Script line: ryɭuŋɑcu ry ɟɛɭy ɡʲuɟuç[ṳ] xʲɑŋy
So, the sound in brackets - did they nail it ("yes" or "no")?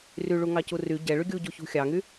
yes